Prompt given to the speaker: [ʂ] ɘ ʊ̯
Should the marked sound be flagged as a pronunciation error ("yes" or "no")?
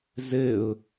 yes